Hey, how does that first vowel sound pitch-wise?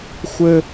high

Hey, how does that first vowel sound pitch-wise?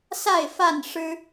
falling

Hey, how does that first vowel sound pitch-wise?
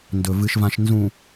low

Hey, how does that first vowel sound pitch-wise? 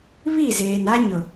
falling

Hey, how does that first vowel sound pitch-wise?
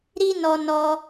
high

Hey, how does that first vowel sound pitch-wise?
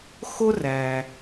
high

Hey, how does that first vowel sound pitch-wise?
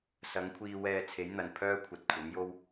rising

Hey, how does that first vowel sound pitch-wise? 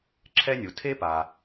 high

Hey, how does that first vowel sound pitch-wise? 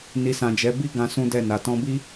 low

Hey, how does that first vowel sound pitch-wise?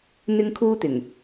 high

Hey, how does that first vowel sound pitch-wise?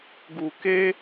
low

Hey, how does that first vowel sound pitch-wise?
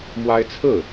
high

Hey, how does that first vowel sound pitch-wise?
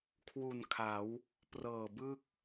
low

